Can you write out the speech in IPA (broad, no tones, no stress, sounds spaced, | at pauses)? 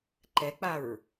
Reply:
ǃ ɛ k͡p a ɹ